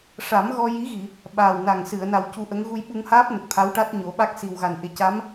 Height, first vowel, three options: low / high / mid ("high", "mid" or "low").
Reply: low